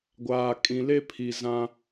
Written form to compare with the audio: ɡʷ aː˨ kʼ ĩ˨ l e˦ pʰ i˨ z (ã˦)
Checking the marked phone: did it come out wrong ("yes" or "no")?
no